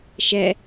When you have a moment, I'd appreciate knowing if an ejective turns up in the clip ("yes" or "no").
no